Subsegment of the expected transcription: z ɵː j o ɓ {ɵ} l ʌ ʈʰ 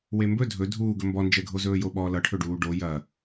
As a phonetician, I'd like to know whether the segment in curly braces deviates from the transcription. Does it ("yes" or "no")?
yes